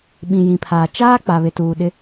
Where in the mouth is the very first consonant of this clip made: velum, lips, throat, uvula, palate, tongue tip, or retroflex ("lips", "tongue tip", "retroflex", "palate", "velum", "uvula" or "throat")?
lips